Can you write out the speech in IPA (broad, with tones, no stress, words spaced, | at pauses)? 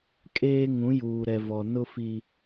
kʼeː˦ ŋũ˨˦ juː˨ɾɛ˨vɔ˨ nʊ˦fi˦